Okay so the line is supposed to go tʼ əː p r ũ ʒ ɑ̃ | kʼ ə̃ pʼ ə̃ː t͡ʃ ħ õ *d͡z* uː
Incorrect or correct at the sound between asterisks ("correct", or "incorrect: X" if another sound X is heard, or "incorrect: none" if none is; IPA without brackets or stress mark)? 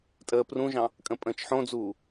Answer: correct